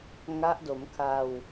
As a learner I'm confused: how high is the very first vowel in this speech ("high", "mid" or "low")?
low